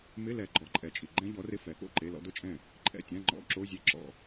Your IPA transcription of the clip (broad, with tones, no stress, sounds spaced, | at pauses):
m ɪ˧˥˧ l ɛ˨ ɡ͡ǃ ɔ˨˩˦ ǃʼ ɛ˨ t͡ʃʼ i˨ ɡ͡ǃ ɛ̃˥ ʎ ɔ˨˥ r ɪ˧˥˧ f ɛ˨˥ k o̰˥˨ ǃ e˧˥˧ l ɔ̰˥ d ʊ˥ t͡ʃʼ ɛ̃˥˨ | ǃʼ ɛ̰˥˨ tʲ ã˧˥˧ ŋ͡ǃ ɔ̰˧˥˧ ǁ o˧˥˧ zʲ e˥˨ ǁ ɔ̰˥˨